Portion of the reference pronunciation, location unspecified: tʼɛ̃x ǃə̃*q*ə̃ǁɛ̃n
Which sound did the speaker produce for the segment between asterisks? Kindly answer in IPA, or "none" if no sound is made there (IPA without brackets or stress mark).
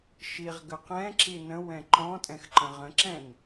ʁ